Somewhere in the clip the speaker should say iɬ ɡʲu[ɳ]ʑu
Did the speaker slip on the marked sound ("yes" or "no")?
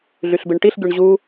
no